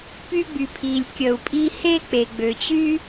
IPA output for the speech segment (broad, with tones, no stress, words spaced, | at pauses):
py˦ɡ͡by˨pʰi˨lʲ kʲə˨u̯pʼi˦ he˥ k͡pe˨ɡ͡bø˨t͡ɕy˦